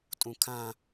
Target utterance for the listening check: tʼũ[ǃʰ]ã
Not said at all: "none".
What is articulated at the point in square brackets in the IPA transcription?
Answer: kʰ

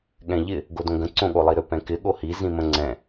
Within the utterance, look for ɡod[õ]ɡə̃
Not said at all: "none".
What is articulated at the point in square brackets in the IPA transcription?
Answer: õ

